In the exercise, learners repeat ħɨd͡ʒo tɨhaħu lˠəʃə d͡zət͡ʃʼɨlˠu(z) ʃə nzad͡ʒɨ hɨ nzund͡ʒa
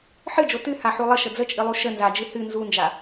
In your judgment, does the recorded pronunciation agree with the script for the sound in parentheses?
no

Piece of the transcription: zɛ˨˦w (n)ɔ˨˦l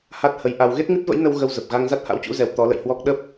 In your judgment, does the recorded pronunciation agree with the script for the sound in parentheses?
no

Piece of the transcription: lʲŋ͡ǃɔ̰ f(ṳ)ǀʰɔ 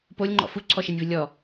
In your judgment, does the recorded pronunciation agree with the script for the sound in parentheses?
no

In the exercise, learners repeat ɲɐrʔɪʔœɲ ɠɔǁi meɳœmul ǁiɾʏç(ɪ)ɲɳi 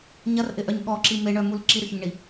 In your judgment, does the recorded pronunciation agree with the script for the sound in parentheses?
no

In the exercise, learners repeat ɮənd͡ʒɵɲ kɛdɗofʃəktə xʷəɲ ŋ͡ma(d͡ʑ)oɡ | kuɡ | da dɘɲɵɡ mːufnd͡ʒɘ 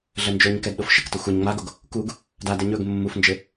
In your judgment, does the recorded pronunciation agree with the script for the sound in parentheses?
no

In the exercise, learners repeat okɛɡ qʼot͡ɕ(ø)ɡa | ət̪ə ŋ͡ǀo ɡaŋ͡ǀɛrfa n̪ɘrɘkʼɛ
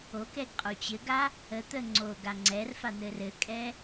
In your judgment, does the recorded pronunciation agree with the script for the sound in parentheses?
no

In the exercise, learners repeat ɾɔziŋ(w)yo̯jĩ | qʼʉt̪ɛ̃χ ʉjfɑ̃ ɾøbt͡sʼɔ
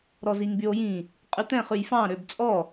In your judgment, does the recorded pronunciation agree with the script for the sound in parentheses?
no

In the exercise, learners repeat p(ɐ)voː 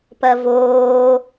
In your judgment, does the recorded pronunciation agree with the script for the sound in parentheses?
yes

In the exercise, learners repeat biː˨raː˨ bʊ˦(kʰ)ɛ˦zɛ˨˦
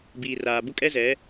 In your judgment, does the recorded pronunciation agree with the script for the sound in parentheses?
no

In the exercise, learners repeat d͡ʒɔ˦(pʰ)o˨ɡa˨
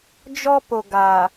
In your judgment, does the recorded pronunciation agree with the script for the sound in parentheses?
no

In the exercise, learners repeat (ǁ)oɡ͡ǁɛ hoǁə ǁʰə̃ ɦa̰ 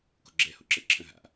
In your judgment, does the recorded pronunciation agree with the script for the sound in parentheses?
no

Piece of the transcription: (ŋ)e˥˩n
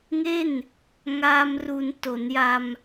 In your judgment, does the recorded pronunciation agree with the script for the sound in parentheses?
yes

